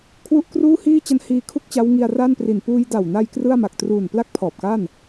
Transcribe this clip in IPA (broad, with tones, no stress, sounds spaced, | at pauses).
kʰ w u˦˥ ʔ k r uː˥˩ h iː˥˩ t͡ɕ a˧ n h iː˧ kʰ u˥˩ k̚ t͡ɕ a˦˥ w ŋ i˧ a̯ r a˥˩ n p r i˨˩ n p uː˧ j d a˨˩ w n a˧ j k r ɯ˥˩ a̯ m a˨˩ k̚ t r uː˨˩ n p l a˥˩ k̚ pʰ ɔː˨˩ p̚ k a˥˩ n